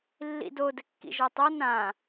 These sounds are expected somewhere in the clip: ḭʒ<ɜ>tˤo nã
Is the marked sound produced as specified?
yes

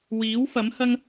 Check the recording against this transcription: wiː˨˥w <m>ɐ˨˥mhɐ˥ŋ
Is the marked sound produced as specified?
no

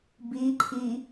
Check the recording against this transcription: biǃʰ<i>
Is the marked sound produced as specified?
yes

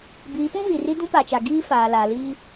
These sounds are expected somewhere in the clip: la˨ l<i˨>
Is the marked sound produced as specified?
no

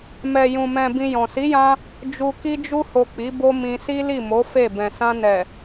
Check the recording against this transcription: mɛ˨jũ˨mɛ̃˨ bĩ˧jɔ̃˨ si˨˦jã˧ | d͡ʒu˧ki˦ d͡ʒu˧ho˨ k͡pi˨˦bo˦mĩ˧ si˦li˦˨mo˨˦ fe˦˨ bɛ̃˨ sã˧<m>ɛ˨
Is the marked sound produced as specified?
no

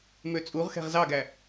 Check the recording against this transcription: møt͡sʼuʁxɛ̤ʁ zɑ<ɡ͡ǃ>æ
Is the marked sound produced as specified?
no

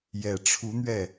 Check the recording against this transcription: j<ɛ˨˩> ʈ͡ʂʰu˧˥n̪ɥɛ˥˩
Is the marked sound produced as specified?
yes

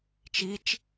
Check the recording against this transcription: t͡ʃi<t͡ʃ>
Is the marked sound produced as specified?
yes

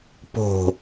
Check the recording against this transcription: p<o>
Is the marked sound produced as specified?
no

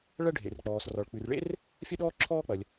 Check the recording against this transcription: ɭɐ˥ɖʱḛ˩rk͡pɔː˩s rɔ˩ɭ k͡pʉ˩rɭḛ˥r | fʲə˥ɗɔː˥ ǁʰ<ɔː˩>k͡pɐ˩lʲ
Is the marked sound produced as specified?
no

